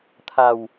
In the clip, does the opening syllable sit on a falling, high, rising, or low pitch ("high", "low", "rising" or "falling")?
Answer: low